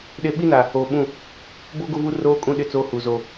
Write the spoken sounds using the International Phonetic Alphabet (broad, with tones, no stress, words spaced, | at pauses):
ɗe˦ ɓi˦na˨ | oː˨ɓũ˦˨ | boː˦ ɡo˦vu˦ roː˦ kʼũ˦ɗɪ˦˨t͡soː˦ hu˨zo˦